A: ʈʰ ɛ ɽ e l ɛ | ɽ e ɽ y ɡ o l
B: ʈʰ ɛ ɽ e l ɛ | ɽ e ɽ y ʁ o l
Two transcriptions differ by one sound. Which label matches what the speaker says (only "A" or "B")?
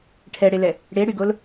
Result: A